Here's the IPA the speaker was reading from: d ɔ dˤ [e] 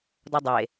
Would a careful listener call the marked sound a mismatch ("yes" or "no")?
no